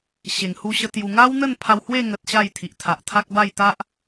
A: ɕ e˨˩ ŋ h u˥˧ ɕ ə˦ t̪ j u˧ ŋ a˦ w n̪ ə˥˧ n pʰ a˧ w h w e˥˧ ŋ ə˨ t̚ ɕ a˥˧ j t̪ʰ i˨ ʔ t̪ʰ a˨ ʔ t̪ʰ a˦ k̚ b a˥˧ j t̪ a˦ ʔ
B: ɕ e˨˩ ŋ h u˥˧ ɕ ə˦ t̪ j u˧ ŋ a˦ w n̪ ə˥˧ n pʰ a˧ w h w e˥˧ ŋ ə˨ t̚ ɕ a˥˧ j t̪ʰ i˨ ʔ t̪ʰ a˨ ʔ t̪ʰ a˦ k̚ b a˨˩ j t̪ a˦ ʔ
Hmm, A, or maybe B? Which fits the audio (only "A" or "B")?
A